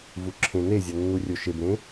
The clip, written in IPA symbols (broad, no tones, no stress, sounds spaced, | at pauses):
v u ǁʰ ẽ n e zʲ ɒ nː u rʲ o ʃ e b ɾ ẽ